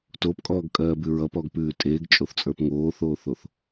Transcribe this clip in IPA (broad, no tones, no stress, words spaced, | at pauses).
topkʼɔːɡkʼɜːbʉ ɹʌpɔɡpʉː tʼeːɡt͡ʃʼoθt͡sʼə˞p ŋoːθoːθoθ